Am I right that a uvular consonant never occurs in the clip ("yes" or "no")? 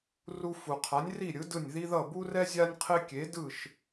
no